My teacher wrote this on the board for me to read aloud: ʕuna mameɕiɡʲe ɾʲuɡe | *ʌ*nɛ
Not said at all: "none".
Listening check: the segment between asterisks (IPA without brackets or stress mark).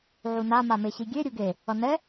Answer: ʌ